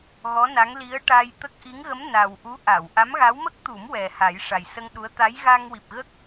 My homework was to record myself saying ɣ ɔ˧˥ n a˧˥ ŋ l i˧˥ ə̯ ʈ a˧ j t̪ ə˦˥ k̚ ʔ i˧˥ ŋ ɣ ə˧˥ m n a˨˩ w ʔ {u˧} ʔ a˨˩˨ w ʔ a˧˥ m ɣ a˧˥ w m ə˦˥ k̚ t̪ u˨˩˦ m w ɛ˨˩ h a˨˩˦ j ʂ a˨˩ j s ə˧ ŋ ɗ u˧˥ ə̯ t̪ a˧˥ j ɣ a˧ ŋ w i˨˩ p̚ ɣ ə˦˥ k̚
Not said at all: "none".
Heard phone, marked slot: u˧˥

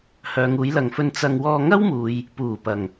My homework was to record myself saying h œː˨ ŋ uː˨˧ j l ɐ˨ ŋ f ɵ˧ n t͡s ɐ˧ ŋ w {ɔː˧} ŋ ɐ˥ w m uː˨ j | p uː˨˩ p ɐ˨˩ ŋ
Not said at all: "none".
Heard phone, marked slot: ɔː˧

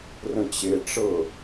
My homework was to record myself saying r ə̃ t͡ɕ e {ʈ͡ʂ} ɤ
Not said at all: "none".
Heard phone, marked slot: ʈ͡ʂ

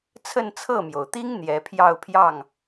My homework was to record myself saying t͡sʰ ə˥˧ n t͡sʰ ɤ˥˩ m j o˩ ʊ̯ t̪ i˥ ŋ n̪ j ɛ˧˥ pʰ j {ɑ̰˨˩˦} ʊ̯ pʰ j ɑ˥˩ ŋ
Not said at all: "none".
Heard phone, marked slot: ɑ˥˧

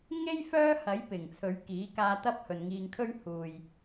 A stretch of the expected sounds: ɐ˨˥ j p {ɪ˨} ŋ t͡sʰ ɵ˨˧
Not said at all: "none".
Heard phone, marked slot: ɪ˨˩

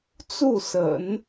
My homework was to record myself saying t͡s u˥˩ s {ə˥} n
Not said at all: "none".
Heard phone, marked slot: ə̰˨˩˦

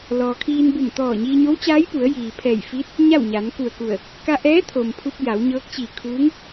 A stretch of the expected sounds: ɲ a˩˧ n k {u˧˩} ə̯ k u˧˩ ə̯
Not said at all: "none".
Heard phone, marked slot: u˧˩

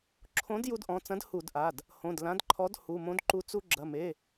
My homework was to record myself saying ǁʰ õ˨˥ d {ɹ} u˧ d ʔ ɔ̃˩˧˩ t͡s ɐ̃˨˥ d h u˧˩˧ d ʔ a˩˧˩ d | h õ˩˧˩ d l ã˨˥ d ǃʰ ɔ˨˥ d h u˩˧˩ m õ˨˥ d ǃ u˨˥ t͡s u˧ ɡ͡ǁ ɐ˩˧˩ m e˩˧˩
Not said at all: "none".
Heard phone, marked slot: j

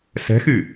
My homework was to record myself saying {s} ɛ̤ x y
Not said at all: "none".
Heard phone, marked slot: s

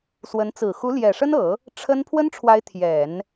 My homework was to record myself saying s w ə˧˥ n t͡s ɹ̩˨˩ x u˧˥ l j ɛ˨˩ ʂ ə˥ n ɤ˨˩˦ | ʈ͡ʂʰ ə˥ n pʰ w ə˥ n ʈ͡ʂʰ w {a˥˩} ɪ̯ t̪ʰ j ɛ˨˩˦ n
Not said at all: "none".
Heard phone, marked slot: a˧˥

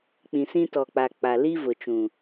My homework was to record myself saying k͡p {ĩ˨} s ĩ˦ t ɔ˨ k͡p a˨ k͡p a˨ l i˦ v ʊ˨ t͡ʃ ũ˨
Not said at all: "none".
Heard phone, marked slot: ĩ˨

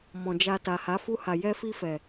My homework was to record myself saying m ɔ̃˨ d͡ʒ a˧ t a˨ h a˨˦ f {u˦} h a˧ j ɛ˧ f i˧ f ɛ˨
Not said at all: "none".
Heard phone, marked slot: u˦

